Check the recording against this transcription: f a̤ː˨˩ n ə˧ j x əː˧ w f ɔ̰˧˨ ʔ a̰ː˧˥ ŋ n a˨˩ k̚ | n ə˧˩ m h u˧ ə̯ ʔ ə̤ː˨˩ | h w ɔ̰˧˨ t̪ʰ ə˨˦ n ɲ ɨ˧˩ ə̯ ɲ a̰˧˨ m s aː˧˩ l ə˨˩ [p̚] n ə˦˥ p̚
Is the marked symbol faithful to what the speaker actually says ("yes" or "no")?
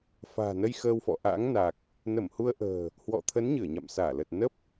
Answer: no